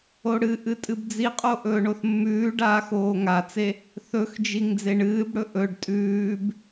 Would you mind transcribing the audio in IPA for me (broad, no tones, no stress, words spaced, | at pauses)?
oɽɨʔɨ tʼɨbd͡ziqʼo ʔɵːɳoθmːʉːɖaːx oːŋat͡se | θɵxd͡ʒiŋ d͡zeɳɨːbɽɵ ʔɵɖ tʼʉːb